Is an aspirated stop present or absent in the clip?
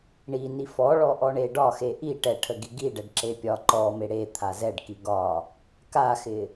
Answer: present